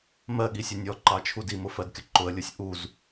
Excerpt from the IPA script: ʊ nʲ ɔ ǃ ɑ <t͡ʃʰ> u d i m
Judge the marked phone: correct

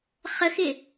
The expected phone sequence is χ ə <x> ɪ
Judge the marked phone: correct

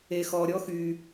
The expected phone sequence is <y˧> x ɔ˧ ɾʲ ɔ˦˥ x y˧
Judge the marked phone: incorrect: e˧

